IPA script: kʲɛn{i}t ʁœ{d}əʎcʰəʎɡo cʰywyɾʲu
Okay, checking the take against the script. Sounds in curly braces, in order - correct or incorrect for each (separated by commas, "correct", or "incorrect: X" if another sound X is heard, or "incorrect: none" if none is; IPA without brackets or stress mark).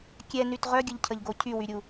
incorrect: y, incorrect: ɡʲ